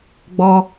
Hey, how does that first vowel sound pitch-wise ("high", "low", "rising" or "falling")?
high